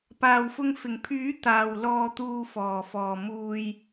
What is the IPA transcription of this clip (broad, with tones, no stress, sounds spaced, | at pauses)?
p aː˨ w f ʊ˧ ŋ f ɪ˨˩ ŋ pʰ yː˨˥ t̪ aː˨ w l ɔː˧ t̪ uː˨ f ɔː˨˩ f ɔː˨˩ m uː˨ j